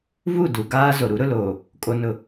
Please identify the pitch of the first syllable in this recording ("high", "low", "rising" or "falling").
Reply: falling